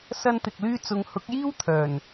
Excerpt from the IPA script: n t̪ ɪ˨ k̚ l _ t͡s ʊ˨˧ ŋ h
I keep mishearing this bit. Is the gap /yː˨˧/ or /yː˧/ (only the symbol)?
yː˧